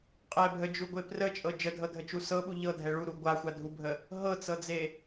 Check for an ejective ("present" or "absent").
present